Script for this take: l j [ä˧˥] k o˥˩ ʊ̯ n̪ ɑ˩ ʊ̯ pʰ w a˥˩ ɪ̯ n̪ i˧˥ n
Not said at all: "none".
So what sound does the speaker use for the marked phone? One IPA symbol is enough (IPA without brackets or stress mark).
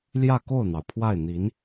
ä˥˧